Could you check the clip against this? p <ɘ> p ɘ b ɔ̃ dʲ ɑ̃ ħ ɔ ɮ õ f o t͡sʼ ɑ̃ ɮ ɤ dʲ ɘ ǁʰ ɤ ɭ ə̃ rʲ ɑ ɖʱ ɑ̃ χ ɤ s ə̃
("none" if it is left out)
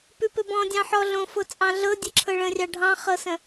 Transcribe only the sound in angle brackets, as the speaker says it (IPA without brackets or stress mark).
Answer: ʉ